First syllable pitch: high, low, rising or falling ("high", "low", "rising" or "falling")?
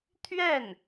falling